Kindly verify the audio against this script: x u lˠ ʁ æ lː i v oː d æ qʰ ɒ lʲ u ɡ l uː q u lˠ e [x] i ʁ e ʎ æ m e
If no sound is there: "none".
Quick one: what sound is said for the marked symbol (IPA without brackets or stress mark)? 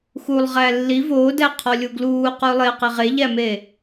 q